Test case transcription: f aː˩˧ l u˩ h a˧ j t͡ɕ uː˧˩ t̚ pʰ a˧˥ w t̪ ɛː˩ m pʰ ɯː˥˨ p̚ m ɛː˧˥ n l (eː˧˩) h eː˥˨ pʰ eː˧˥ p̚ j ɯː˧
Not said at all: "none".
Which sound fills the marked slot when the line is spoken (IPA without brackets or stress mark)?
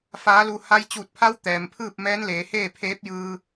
eː˩˧